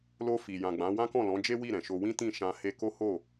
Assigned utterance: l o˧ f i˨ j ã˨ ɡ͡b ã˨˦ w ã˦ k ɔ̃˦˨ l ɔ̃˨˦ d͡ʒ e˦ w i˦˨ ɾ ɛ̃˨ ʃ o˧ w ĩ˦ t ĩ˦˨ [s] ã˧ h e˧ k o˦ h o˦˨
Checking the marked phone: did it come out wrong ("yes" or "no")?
yes